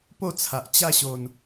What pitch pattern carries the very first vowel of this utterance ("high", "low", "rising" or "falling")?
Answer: falling